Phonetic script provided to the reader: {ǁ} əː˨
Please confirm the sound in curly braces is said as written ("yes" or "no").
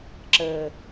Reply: yes